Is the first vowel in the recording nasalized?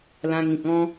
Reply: yes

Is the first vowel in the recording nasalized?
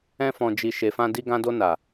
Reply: yes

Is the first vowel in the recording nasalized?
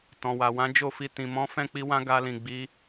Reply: yes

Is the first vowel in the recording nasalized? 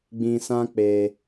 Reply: yes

